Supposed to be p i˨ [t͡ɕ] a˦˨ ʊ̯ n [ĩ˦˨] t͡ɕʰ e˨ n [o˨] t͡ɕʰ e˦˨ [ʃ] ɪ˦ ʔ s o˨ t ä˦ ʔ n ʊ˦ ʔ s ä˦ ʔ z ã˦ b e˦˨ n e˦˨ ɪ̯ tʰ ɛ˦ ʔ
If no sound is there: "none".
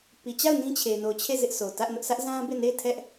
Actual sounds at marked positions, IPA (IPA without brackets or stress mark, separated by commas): t͡ɕ, ĩ˦, o˨, z